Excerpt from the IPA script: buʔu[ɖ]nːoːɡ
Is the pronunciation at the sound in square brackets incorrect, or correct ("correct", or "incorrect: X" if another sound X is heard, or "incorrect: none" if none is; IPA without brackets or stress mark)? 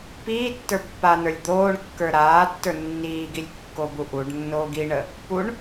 correct